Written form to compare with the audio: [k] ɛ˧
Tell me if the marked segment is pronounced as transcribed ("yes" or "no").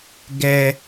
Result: no